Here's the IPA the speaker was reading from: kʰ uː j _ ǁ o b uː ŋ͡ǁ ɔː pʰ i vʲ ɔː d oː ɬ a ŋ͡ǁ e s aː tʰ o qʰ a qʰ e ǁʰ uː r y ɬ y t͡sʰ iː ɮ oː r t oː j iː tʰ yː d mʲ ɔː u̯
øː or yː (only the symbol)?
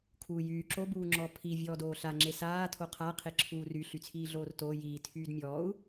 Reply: yː